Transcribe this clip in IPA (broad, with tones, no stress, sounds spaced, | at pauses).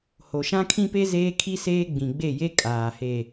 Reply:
h o˨ ʃ ã˦ kʰ ĩ˦ p e˦ z eː˦ kʰ i˦ s eː˦ ɡ͡b ĩ˨ ɡ͡b e˦˨ j e˦ kʼ aː˨ h e˦˨